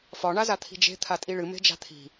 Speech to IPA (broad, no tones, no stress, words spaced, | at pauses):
fɒ ɳazat̪ʰi̤d͡ʒe̤ t̪ʰatʼiɭɨ me̤d͡ʒa̤t̪ʰi̤